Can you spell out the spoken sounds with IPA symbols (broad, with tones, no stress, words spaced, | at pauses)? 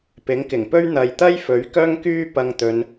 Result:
pɪ˨˥ŋkɪ˨˩ŋpɵ˥ɥ n̪ɐ˨jt̪ɐ˥j fɵ˨˥ɥkœː˥ŋkyː˥ pɐ˧ŋt̪ɵ˨˧n